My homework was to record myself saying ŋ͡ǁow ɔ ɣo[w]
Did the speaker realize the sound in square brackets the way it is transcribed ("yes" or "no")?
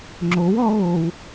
yes